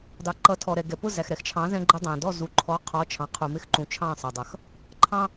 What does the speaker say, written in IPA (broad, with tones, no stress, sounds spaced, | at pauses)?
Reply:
d ɑ˩ ǃ ʌ˩˥ tʰ ɔ˩ ɾ ɛ˩ ɡ ɛ˩ p ʊ˥˩ z æ˩ x ɾ ɛ˩ x t͡ʃʰ ɑ̃˩˥ z ɛ̃˧ ɡ͡ǃ ə˧ dˤ æ̃˩ d ɔ˥˩ z u˩ ǃʰ ɔ˩˥ qʰ ɔ˩˥ t͡ʃʰ ɑ̃˩ qʰ u˩ m ɪ˧ x ǃ ũ˩ t͡ʃʰ ɑ̃˥˩ sˤ ʌ˩ dˤ ʌ˩ x | ǃʰ ɑ̃˥